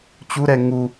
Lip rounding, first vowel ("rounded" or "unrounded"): rounded